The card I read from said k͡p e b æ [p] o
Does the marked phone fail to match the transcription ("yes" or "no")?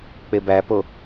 no